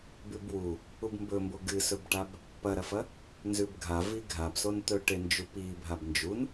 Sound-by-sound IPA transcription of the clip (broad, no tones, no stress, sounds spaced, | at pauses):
b ʉ b w u | u b m b ɵ m b o ɡ ɨ s ɵ b ʈ a b | p ɐ ɾ ɐ f ɐ | n z ʉ b ɡʱ a v i ɡʱ a b s o n t̪ ɵ ʈ e n d͡ʒ u p i bʱ a b n d͡ʒ u n